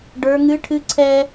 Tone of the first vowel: high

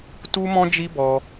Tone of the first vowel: high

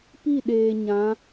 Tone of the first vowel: falling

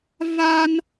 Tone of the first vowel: high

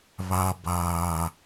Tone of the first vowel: low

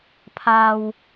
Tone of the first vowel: low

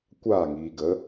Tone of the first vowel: falling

